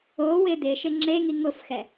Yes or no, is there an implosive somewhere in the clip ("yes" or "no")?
no